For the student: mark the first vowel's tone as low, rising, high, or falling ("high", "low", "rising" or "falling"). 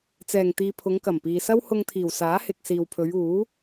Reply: low